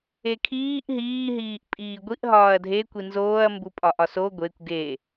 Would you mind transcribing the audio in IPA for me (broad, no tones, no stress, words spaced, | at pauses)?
ekʰiːʔ ɦiːɦiːʔ pʼiːɡʷiʔ ɦɒːɐ̯dʱe kʷinzoːɐ̯ mbupʼɒʔɒso ɡʷekʷ ɡe